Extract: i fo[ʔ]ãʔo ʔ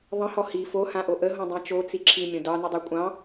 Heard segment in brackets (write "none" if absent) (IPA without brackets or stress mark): h